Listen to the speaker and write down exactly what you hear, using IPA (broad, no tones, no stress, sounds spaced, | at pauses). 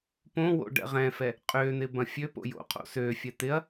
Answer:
p õ w o̰ ɖ ɛ̰ ʁ ɛ̃ f ɛ | qʼ ø n̪ ɪ b ɐ̃ fʲ ø p o̰ j o̰ qʰ o̰ s ø fʲ ɛ t̪ ɪ ɐ̯